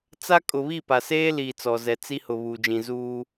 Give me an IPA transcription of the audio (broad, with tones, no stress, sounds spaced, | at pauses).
t͡s a˦ kʼ ʊ˨ β i˦˨ p a˨ s eː˦ l iː˨ t͡s ɔ˨ z ɛ˨ t͡s i˦ h ʊ˨ β uː˨ d͡ʒ ĩ˨ z uː˦